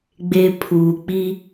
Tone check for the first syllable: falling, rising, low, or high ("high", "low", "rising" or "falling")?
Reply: high